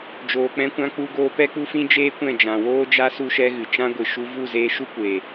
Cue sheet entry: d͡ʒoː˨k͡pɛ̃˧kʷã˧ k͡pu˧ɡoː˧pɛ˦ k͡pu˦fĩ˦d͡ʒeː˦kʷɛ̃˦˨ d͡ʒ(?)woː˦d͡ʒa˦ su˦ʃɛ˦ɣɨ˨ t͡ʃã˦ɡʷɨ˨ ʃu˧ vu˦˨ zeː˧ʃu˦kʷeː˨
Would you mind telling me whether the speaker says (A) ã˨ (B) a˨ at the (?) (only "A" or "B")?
A